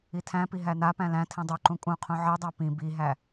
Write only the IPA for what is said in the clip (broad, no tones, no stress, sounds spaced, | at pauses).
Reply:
i tʰ æ̃ p i ɦ æ n a p æ̃ l æ̃ tʰ ĩ dˤ u ǃ ũ kʼ ũ qʰ ũ ʕ i dˤ æ p ĩ b i ɦ æ